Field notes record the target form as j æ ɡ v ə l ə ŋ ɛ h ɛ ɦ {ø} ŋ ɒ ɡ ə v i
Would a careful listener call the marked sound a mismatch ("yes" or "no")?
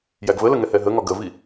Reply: yes